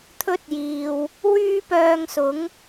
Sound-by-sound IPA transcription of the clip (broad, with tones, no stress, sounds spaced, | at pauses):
t̪ʰ ɵ˥ t̚ j iː˨ w | w yː˥ p œː˧ ŋ s ʊ˨˥ ŋ